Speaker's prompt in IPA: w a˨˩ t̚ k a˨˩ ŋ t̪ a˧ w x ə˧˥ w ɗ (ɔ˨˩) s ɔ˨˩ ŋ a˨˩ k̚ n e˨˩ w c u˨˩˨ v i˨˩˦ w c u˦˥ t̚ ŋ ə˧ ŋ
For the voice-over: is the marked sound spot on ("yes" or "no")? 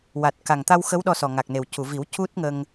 no